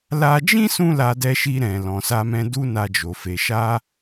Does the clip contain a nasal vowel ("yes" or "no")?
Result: yes